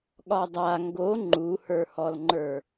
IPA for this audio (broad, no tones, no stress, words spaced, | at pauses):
ɠɒdˤa ŋɡo ŋ͡ǃuhə˞hɔlŋ͡ǃə˞